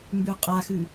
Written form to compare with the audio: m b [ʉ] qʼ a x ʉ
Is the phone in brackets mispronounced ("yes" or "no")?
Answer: no